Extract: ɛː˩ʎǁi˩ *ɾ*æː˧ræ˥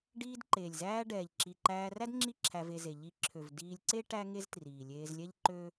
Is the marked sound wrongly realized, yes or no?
yes